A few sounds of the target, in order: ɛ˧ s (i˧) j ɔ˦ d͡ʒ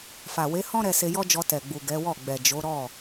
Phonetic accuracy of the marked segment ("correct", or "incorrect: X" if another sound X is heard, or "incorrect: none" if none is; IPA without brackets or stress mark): incorrect: e˧